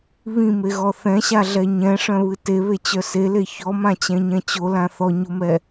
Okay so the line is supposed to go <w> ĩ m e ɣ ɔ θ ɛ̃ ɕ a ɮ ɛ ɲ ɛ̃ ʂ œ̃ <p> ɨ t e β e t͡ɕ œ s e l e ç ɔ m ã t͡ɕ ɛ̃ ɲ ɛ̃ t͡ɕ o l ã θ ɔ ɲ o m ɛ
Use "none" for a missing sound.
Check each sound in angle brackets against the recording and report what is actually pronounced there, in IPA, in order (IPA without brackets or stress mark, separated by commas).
β, β